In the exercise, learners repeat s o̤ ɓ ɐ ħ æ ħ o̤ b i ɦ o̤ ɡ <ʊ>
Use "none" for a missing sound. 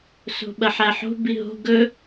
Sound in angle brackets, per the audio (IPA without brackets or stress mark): ɵ